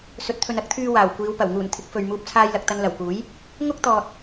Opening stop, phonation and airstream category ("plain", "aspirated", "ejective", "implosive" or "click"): plain